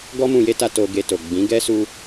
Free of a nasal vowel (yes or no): no